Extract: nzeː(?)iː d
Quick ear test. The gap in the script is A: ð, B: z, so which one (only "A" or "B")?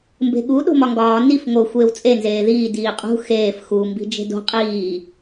A